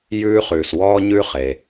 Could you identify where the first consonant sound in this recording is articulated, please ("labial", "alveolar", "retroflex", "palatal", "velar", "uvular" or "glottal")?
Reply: palatal